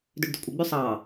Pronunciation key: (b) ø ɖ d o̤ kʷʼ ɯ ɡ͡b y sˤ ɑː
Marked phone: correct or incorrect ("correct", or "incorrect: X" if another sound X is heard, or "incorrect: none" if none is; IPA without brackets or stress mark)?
incorrect: d